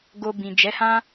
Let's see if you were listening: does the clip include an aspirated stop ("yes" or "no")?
no